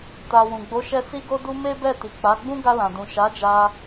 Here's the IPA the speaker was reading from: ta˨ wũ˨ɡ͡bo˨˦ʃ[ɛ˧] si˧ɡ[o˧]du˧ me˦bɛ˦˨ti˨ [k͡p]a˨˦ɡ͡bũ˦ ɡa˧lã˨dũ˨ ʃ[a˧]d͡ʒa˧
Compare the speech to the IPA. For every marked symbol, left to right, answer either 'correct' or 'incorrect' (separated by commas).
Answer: correct, correct, correct, incorrect